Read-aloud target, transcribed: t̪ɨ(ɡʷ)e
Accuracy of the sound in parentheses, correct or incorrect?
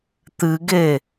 incorrect: ɡ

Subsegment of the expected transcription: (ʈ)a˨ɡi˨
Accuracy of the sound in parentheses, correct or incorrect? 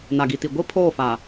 incorrect: n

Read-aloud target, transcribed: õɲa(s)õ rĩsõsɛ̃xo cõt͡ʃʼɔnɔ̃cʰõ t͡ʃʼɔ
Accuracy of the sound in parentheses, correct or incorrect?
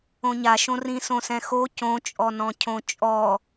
incorrect: ʃ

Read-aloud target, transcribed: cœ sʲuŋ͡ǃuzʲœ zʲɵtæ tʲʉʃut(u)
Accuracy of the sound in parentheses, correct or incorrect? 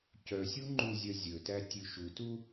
correct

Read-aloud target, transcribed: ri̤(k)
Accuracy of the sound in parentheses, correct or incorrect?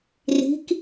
correct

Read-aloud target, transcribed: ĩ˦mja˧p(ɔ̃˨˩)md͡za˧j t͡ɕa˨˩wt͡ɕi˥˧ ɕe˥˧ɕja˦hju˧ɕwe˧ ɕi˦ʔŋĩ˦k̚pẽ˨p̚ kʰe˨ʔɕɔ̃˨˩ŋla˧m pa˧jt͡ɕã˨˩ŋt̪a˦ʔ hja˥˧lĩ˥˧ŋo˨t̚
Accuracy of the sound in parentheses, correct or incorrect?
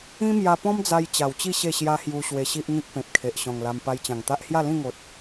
incorrect: ɔ̃˦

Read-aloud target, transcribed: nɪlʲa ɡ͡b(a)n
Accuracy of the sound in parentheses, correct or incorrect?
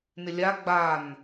correct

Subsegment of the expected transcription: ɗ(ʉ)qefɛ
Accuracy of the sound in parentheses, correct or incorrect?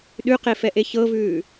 correct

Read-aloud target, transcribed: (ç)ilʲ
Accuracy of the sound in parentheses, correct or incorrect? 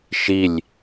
incorrect: ʃ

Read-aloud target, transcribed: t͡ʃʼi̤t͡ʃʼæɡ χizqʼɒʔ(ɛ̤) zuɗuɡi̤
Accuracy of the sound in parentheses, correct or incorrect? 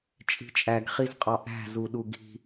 incorrect: æ̤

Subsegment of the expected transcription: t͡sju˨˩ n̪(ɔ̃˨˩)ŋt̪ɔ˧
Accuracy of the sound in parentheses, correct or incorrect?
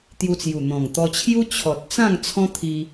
correct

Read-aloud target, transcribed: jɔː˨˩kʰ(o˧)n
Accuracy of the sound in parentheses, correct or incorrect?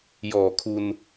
incorrect: u˧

